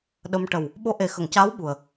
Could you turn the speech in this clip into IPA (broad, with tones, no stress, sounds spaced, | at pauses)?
ɗ ə˧ m ʈ ə˨˩ w | ɓ o˧˥ ʔ e˨˩ x ə˨˩˨ ŋ c aː˧˥ w ɓ u˨˩ ə̯